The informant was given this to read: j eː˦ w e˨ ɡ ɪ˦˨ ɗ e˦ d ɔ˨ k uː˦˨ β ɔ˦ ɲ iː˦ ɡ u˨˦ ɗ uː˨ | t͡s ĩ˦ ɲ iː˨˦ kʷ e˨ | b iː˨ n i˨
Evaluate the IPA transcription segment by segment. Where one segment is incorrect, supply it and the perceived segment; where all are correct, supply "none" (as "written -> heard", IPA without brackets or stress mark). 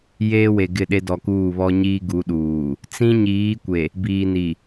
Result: none